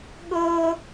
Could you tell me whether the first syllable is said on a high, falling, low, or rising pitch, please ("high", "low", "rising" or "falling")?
high